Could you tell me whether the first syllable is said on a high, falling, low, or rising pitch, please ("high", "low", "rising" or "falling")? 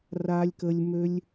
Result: high